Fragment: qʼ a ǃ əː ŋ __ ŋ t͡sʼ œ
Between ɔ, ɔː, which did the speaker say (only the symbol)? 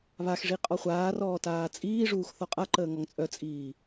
ɔ